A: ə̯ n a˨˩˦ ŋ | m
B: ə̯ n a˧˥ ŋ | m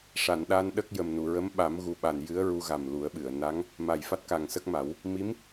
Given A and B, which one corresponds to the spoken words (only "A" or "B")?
B